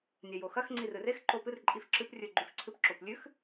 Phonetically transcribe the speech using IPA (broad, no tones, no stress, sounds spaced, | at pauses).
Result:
nʲ a j o x ɐ x ŋ͡ǀ i r ɨ r e x ǃ o p ɨ r ǃʼ i f ǁ ɨ p rʲ ɵ ɡ͡ǃ ʉ f ǀʰ ɨ p ǁ o p lʲ ʉ x